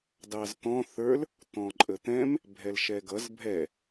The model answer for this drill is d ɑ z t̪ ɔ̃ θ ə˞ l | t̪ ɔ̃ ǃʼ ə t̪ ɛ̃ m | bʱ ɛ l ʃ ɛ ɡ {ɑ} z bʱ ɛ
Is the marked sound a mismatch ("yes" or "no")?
yes